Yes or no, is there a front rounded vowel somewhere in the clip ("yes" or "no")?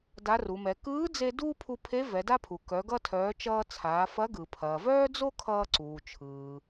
yes